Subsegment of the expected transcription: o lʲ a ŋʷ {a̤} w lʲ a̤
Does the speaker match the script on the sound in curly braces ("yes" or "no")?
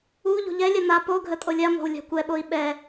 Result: yes